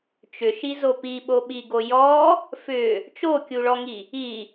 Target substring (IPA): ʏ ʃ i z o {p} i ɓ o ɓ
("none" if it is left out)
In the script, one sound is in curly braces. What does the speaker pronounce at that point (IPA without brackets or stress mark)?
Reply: p